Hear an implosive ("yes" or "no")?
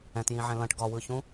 no